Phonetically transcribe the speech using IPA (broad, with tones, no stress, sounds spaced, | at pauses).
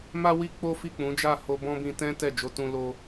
m a˦ w i˦ k͡p o˦ f i˦˨ k͡p ũ˨˦ d͡ʒ a˦˨ h o˧ b ɔ̃˦ b ĩ˧ t ɛ̃˦ t ɛ˦˨ d͡ʒ o˧ t ũ˧ l o˧